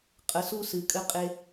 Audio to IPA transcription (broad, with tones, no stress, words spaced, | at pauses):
qʼə˩˧su˧˩ sɨ˩˧kʼɘ˧ qʼe˧